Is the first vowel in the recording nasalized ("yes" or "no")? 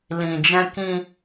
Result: yes